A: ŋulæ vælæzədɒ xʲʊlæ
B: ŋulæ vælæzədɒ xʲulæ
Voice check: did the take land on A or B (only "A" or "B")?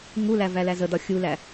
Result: B